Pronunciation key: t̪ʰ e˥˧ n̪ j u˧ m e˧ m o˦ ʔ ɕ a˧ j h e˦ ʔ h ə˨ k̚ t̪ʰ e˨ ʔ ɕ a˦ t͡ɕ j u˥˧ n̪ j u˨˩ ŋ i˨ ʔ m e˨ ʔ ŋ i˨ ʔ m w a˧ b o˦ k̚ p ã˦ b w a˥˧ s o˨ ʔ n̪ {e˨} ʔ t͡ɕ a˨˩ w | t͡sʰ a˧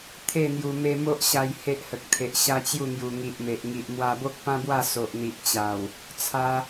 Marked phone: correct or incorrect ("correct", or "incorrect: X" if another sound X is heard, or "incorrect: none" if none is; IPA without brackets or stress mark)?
incorrect: i˨